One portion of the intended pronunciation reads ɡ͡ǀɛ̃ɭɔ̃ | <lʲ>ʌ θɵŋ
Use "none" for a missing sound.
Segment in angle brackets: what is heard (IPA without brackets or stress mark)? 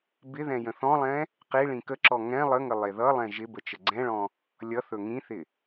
lʲ